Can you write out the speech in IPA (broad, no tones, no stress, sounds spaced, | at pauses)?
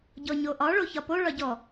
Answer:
ɟ ɔ ɲ o ʔ ɒ ɭ o ç ɒ p o ɭ ɒ ɟ ɔ